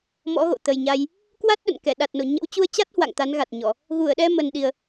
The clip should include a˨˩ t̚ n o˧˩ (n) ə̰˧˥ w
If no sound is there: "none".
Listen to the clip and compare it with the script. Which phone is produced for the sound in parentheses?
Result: ɲ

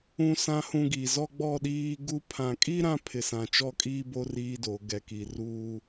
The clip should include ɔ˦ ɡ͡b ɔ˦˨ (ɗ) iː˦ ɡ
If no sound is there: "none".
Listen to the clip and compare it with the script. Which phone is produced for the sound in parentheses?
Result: ɗ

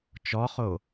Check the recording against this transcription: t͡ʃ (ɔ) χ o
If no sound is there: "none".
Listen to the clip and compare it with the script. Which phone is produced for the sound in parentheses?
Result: ɔ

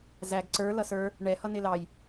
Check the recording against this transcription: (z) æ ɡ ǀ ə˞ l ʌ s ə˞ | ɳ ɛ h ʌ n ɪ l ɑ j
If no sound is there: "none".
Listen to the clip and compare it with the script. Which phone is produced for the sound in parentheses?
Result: z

